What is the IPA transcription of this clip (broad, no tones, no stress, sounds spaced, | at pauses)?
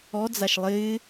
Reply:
ɔ d͡z a ʃ lˠ ɪː